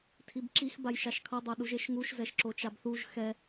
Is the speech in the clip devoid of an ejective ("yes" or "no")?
yes